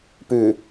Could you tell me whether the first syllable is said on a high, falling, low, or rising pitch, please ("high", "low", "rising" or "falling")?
low